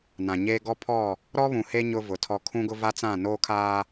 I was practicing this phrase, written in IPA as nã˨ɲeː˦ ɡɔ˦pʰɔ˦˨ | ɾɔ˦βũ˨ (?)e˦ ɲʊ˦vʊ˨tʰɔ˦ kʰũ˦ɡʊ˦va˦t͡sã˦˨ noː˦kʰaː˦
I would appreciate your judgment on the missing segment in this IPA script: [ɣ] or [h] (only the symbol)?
h